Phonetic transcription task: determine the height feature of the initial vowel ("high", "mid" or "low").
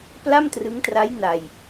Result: low